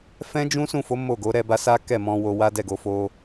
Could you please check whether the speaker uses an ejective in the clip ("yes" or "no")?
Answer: no